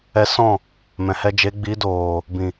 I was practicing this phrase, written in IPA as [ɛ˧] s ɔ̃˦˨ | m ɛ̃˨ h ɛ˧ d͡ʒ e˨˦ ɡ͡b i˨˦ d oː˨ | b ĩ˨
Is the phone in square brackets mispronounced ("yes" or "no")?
no